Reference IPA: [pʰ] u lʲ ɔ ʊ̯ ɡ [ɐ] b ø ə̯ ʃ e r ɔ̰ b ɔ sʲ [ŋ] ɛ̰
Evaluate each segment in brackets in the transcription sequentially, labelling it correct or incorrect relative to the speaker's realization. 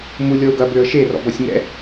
incorrect: m, correct, correct

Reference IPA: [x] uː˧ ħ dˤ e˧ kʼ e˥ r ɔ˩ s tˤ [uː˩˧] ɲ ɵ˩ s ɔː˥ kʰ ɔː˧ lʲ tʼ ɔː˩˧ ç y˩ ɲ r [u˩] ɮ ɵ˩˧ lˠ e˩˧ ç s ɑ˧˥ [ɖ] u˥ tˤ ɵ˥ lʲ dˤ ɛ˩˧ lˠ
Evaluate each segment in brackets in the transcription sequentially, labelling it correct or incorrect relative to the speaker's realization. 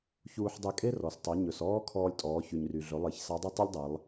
incorrect: ç, incorrect: u˩˧, incorrect: y˩, incorrect: dˤ

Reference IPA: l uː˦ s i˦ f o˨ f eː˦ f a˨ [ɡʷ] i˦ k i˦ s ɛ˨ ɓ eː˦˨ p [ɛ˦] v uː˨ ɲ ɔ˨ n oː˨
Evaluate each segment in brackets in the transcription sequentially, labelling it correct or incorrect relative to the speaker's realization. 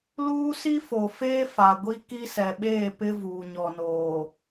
correct, incorrect: ɪ˦

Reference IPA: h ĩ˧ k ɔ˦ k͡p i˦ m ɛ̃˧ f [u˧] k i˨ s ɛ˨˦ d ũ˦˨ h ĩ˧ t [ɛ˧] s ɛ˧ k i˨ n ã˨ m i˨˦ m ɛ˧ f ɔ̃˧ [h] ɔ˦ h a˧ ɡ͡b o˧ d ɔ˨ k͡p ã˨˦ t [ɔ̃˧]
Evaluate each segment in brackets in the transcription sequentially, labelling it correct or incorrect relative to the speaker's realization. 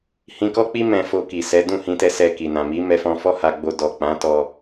incorrect: o˧, correct, incorrect: f, incorrect: ɔ˧

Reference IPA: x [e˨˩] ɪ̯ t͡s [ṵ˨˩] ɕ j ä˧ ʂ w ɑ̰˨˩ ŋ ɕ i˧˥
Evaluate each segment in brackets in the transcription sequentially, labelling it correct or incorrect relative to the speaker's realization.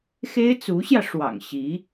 incorrect: e˥, incorrect: u˧˥

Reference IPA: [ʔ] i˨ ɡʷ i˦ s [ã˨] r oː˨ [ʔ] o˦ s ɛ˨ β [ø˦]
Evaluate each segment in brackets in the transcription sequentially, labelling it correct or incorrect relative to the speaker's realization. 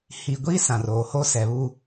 incorrect: h, correct, incorrect: h, incorrect: u˦

